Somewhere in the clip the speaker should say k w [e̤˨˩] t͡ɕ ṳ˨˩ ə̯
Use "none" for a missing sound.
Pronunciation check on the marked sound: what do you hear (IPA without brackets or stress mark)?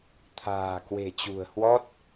e̤˨˩